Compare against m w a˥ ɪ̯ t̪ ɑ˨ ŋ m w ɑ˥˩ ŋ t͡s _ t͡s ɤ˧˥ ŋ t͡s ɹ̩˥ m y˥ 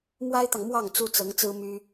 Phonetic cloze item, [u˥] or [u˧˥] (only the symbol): u˥